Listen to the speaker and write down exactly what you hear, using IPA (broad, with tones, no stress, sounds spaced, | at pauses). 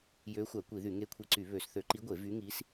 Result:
j øː˧˥ xʷ æ˧˩˧ kʷ i˧˩˧ ð y˧˩˧ ŋ e˧˥ kʷʰ i˧˩˧ ǀ y˧˩˧ β ø˧˩˧ s θ ø˧˩˧ ǃ i˧˥ ɡʷ e˧˩˧ v y˧˥ ŋ i˧˥ s